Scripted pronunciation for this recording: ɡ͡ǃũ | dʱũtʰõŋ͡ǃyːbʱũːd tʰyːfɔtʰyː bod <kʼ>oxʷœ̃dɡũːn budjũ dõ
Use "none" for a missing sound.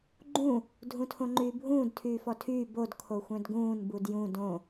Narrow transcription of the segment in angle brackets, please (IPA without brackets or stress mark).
kʰ